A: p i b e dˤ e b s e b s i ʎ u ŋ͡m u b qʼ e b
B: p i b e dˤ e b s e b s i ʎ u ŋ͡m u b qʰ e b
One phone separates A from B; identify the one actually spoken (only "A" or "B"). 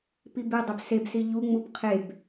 B